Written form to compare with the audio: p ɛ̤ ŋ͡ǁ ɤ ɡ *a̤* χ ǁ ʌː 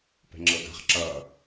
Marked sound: correct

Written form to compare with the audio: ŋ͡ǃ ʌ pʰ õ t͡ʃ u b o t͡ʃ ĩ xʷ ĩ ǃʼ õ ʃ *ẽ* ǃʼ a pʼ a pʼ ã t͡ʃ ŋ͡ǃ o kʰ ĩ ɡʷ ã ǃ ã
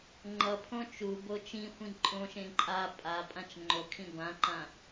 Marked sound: correct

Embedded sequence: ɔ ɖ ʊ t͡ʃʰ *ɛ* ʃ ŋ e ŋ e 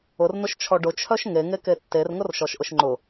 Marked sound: incorrect: œ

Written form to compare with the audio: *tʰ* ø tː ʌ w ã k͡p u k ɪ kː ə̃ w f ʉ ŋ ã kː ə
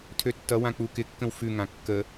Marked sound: correct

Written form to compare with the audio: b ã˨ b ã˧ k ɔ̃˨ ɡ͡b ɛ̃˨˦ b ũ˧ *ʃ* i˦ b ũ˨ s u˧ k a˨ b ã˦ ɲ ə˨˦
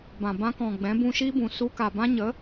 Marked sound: correct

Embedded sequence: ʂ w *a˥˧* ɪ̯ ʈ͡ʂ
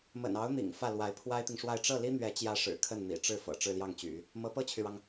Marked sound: correct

